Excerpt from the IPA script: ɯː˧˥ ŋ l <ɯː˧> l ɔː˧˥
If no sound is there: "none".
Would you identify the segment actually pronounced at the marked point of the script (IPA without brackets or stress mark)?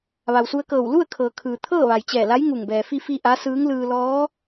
ɯː˧